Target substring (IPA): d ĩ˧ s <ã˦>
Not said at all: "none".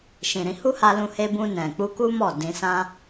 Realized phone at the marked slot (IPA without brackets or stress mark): ã˦